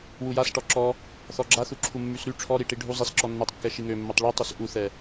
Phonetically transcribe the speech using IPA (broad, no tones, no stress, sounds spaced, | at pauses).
w u j a s ʈ ɔ ǁ ɔ | θ ɔ ɡ͡ǁ a θ u ǁʰ u mː y s ɾ y ʈ͡ʂʰ ɔ ɾ i ʈ i ɖʱ u zˤ i s ǁ ɔ nː ɛ tˤ kː ɛ ʃ i ŋ ø mː ɛ tˤ ɭ y tˤ y s ʔ u θ ɛ